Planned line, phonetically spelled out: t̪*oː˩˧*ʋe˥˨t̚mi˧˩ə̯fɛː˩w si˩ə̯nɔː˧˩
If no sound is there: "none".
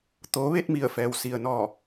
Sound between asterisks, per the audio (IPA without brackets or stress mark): oː˩˧